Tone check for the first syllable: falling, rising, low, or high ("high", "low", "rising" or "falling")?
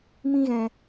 high